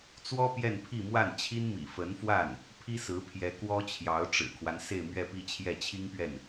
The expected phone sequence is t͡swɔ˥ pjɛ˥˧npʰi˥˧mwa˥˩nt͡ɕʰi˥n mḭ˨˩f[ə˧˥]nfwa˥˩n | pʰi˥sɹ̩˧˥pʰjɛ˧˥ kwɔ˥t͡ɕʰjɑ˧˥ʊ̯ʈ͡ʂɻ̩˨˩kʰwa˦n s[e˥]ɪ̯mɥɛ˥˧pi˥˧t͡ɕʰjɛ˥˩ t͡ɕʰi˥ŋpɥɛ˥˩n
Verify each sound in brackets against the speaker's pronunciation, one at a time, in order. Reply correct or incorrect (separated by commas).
correct, incorrect